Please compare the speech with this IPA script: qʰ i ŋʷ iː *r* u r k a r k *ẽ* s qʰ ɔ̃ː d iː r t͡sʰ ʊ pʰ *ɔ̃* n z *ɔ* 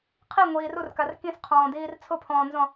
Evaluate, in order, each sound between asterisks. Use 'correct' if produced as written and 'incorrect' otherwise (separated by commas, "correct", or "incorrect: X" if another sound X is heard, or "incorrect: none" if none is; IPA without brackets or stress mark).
correct, incorrect: ĩ, incorrect: ɔ̃ː, incorrect: ɔ̃